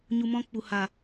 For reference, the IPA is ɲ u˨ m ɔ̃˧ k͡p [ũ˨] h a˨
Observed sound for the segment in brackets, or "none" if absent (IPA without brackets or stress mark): u˨